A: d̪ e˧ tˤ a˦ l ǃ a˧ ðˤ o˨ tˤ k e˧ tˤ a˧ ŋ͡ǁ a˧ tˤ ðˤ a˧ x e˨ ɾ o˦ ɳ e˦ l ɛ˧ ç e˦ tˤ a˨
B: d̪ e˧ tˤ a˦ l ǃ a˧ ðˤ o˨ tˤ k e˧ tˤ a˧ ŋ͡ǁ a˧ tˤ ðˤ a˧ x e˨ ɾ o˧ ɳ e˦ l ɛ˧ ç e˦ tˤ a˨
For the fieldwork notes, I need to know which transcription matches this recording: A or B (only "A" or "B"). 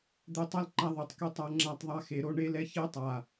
A